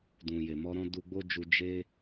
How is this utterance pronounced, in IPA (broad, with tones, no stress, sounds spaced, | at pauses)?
d ũ˨ j e˨ m ɔ˧ ɾ ɔ̃˦ d u˧ ɡ͡b o˦ d͡ʒ u˧ d͡ʒ e˦